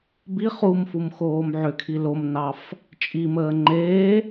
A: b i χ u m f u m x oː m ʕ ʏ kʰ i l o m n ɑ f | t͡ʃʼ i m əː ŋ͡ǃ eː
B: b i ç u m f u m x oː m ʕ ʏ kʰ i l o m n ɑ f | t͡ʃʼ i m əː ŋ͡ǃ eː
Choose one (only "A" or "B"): A